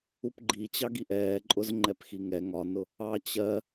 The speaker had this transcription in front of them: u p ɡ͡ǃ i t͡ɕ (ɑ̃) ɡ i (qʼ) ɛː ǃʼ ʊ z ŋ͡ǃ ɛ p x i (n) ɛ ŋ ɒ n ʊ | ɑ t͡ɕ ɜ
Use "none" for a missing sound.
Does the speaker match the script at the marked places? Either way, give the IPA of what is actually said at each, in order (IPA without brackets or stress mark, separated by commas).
ɑ, ʔ, ŋ